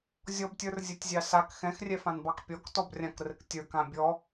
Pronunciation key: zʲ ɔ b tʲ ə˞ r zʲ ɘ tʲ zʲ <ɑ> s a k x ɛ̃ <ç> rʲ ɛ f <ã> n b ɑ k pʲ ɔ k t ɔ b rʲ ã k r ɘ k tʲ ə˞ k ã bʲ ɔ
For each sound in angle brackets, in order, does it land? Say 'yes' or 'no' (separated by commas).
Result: yes, no, yes